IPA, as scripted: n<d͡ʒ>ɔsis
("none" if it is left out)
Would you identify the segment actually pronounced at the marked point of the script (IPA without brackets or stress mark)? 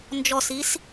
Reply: d͡ʒ